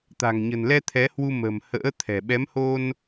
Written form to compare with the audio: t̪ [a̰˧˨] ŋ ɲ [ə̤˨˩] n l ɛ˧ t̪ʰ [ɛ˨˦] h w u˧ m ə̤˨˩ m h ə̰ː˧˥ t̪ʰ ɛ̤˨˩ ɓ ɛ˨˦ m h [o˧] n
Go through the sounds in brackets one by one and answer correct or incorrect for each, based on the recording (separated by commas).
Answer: incorrect, correct, correct, correct